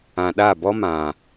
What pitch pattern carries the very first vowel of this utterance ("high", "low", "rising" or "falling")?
low